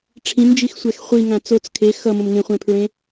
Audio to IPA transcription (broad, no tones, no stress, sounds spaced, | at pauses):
ʈ͡ʂʰ ĩ n d͡ʒ i x sʷ ɛ x χʷ i ŋ ã t͡s o t͡s kʰ e x ʌ m õ m ŋ ẽ χʷ ẽ pʰ ɹ ẽ